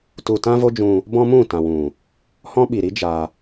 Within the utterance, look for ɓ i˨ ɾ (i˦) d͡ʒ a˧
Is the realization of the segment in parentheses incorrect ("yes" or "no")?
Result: no